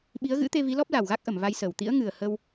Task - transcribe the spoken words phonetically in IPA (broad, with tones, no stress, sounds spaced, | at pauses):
ɓ i˨˦ ə̯ ɣ ɨ̰˧˥ t̪ e˧ v i˨˦ l ɔ˦˥ p̚ l a˨˩ w ɣ a˦˥ k̚ ʔ ə˧˩ m v a˧ j s əː˧˩ w t̪ ḭ˧˥ ə̯ ŋ ɨ˨˩ ə̯ h ə˧ w